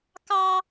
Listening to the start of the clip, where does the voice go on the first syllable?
high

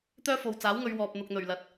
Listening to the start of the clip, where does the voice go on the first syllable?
high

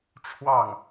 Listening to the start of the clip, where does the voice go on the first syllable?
falling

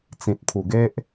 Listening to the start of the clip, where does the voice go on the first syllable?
low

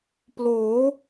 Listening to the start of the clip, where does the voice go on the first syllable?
rising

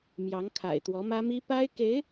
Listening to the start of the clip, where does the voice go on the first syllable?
rising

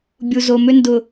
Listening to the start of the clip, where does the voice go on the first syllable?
low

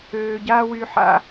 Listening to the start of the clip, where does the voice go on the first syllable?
low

